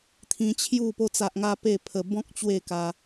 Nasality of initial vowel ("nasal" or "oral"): nasal